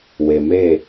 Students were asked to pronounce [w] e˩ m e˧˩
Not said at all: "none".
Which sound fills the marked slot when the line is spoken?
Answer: w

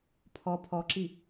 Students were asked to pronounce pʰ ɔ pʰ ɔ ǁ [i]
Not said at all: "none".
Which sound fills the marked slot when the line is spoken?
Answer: i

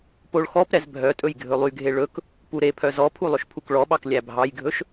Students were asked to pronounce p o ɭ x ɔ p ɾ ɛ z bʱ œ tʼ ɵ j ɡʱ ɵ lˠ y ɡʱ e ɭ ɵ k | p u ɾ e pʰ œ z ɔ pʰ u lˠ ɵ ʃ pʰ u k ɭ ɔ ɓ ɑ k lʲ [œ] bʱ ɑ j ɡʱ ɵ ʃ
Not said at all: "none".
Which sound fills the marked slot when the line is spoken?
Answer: æ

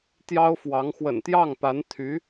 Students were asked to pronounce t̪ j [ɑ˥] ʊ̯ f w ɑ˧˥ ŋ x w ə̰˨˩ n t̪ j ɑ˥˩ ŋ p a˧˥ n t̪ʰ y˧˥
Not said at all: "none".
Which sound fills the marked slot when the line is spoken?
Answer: ɑ˥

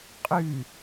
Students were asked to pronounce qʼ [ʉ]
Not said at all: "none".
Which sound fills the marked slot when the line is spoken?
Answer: ʉ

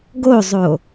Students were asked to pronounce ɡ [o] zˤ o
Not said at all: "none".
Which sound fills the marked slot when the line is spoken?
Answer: o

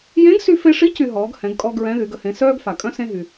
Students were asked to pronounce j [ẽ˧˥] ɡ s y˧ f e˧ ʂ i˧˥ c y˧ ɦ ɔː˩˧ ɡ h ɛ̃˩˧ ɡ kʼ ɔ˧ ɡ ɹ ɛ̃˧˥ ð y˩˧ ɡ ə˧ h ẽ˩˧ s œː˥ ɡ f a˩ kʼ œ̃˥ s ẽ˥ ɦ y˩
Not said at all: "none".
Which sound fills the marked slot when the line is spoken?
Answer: ẽ˧˥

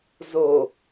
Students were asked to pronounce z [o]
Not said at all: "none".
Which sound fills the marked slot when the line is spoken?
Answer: o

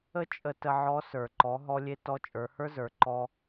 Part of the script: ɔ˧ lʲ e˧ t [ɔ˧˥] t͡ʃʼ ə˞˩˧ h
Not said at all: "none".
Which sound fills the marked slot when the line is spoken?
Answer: ɔ˧˥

